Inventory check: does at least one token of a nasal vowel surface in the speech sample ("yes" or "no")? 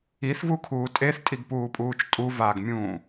yes